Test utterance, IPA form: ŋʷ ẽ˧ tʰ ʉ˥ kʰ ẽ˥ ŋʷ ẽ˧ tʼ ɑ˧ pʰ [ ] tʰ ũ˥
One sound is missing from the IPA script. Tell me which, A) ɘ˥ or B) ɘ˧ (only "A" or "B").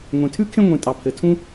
B